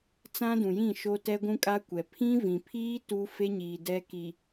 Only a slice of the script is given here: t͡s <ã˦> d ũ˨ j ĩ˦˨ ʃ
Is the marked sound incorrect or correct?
correct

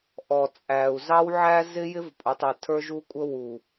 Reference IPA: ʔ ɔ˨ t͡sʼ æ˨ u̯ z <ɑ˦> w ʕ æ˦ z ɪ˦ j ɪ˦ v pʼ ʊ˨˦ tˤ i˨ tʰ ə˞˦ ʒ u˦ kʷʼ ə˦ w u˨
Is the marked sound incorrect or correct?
correct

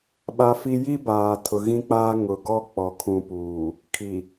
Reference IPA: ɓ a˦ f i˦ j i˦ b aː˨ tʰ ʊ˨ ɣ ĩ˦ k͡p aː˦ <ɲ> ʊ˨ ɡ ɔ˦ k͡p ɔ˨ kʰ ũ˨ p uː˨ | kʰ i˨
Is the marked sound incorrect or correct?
incorrect: ŋ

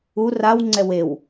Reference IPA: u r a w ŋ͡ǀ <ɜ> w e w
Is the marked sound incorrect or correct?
incorrect: ɛ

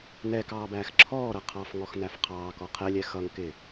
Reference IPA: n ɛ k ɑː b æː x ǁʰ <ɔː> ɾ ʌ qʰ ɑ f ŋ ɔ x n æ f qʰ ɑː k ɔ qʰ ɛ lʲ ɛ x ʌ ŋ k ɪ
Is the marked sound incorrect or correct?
correct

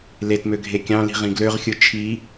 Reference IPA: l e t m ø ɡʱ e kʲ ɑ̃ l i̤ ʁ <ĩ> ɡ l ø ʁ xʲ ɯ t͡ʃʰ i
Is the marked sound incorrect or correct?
correct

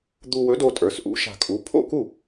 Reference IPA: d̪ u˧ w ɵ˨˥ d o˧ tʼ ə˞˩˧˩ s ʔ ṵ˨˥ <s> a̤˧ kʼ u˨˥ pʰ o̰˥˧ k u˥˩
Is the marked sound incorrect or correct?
incorrect: ʃ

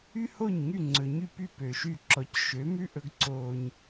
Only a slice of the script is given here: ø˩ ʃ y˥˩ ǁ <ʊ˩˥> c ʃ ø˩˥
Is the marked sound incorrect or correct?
incorrect: ɔ˩˥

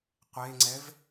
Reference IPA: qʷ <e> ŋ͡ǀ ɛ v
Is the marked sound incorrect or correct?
correct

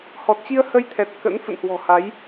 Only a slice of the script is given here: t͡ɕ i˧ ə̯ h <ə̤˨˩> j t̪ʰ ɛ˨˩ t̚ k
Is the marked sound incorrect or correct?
incorrect: ə˧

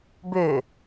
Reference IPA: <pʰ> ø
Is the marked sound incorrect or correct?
incorrect: b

